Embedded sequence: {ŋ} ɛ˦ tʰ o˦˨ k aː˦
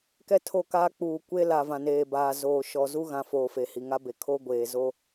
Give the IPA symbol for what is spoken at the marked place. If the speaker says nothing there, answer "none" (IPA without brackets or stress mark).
k